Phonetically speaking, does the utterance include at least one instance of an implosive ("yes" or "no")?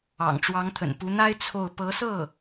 no